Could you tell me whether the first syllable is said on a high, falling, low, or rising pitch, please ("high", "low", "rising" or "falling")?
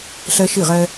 high